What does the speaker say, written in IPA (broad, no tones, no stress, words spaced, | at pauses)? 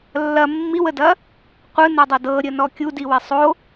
lːɐ mːiwədɐ | qʷɯnodˤɐ dɤɾʲənɔ kʲudiwɛ sˤo